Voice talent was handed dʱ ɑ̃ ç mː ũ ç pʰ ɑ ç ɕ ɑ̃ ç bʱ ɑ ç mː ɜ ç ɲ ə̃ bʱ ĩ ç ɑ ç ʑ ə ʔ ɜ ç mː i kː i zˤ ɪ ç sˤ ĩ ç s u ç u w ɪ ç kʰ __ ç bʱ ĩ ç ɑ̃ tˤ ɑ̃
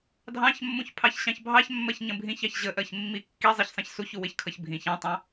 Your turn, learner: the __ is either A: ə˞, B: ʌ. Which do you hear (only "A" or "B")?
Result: B